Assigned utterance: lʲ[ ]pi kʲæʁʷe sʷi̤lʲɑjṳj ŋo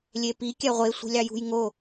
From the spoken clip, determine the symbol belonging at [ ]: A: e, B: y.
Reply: A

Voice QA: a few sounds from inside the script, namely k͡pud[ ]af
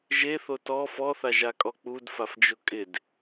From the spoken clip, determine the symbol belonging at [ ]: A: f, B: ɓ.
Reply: A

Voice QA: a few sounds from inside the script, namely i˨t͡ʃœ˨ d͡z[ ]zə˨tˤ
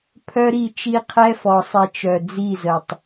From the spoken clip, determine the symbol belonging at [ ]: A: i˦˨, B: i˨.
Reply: A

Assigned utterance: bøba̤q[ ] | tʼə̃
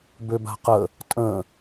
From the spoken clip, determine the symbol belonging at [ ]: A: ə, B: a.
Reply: A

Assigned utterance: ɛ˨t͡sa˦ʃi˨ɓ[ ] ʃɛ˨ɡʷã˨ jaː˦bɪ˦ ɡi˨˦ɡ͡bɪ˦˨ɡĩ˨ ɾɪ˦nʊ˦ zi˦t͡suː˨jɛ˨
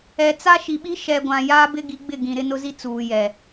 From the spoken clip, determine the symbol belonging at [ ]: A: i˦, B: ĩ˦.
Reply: A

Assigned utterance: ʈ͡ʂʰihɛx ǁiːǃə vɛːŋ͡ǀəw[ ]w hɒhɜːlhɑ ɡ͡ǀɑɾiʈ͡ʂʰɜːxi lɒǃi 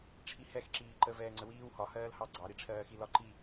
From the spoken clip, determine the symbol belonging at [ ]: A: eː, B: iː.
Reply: B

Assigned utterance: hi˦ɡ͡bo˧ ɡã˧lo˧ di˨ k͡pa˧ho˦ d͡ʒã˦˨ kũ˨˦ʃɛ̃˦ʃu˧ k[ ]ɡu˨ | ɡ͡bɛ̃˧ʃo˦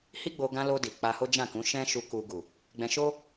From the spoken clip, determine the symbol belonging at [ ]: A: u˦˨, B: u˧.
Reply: B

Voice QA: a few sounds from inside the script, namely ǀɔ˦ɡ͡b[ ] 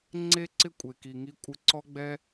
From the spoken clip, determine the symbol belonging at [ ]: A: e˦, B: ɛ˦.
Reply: B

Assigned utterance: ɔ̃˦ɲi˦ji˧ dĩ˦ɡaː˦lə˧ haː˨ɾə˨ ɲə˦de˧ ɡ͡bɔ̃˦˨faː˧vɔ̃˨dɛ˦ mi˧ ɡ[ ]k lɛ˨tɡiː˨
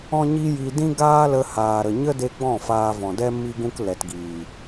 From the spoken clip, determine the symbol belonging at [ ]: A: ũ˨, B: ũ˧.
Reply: B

